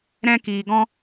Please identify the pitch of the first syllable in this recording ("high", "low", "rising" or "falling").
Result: high